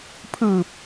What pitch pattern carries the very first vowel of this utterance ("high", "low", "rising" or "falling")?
low